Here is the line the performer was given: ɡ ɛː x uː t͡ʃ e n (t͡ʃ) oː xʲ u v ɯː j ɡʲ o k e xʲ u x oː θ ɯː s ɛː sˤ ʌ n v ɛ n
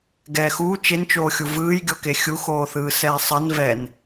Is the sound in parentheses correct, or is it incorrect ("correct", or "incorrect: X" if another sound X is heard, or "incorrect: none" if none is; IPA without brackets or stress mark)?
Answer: correct